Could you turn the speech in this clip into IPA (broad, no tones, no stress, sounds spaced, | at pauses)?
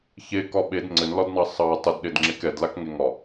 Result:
ç e k ɒ ɓ e d ŋ͡ǀ ɘ n l ɒ d n ɑ sˤ ɑ tˤ ə d ɗ e d ŋ͡ǁ e k ɛ d l a k ŋ e ŋ ɒ